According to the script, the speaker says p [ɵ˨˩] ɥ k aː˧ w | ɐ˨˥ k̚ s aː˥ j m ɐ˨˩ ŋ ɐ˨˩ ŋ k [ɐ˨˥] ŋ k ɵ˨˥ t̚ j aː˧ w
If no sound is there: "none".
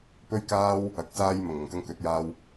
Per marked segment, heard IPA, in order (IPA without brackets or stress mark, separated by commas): ɵ˧, ɐ˥